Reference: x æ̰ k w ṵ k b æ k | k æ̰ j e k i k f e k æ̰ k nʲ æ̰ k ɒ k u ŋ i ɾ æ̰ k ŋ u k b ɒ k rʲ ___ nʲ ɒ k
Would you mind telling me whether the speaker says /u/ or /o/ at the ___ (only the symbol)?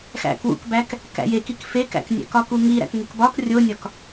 o